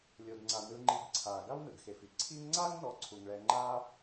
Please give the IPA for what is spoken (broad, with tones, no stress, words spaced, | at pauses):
lʲo˨dŋ͡ǀa˨ nɯ˨ŋ͡ǃi˨ɡǀʰaː˩ ɡa˥wnɯ˩ɡxe˩fi˦ ǀʰi˦ŋŋ͡ǀaː˥ŋnɔ˨ ǀʰu˩ŋɭɛ˨ŋ͡ǃaː˥